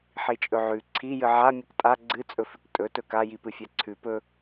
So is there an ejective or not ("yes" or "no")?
yes